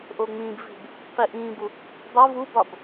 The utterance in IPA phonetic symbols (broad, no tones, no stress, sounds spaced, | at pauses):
ʔ o ŋ͡m ĩ b v i̤ b | q i ʔ ĩː b u | dˤ o v u b ɒ b